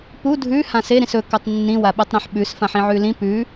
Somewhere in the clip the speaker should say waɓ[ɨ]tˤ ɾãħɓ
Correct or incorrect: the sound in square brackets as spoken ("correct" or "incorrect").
correct